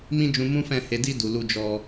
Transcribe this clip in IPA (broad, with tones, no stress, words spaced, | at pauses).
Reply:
mĩ˦d͡ʒũ˧ mũ˦fɛ̃˦˨ he˨˦di˦ du˧lu˦d͡ʒɔ˦